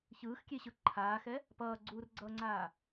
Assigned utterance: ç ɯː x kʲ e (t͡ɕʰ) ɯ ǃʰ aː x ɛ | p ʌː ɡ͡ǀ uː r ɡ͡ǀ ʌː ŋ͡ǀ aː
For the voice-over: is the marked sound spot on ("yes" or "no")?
no